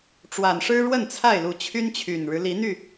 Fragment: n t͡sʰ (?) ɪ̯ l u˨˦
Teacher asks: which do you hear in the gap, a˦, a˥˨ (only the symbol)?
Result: a˥˨